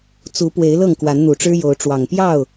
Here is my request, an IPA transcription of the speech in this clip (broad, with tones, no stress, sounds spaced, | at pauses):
t͡s u˨˦ p w e˨˦ ɪ̯ l ɤ˥˨ ŋ k w a˨˦ n n̪ u˨˩ ʈ͡ʂ ɻ̩˦ j o˨˦ ʊ̯ ʈ͡ʂ w ɑ˨˩ ŋ p j ɑ˥˨ ʊ̯